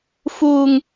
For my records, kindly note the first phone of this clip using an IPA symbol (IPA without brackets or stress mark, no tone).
f